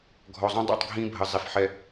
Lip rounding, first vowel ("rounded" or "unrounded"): rounded